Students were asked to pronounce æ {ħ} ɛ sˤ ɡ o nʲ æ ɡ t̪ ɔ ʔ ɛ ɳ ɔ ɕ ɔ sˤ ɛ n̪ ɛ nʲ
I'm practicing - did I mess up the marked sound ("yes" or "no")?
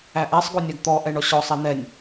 yes